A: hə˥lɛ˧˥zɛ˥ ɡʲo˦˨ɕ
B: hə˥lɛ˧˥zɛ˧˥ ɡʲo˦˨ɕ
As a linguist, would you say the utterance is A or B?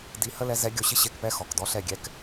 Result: B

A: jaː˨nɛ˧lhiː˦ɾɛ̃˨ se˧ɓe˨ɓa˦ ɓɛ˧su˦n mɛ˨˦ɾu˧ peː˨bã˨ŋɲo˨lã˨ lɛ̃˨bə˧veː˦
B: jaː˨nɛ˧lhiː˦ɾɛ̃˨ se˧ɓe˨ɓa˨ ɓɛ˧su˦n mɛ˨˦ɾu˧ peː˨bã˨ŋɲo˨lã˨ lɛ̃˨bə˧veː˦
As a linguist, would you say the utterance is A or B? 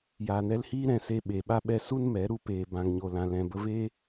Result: A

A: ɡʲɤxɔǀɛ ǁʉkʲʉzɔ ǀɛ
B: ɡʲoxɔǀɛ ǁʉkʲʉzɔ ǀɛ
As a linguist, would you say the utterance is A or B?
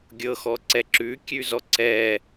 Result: A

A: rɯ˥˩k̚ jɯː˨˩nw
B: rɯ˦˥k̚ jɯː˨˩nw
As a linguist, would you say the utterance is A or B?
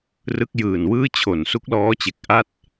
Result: B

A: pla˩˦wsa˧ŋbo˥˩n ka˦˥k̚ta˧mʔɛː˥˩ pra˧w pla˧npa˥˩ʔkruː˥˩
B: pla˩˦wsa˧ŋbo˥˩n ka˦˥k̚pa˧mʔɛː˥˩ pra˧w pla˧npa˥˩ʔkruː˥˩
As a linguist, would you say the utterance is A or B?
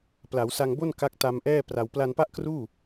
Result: A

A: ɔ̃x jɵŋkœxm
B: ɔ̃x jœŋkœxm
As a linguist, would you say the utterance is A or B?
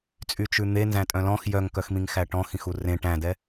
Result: B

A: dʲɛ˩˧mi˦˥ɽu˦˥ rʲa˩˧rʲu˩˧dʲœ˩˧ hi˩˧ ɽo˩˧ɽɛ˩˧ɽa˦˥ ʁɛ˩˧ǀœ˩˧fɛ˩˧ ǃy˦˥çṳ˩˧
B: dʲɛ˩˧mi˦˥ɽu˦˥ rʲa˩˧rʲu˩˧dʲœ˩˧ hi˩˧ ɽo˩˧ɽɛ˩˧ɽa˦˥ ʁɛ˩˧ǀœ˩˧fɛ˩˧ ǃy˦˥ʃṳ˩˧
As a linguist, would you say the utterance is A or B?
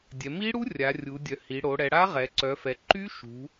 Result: B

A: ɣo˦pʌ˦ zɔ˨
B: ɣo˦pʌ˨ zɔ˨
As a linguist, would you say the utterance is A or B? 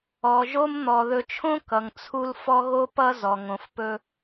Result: A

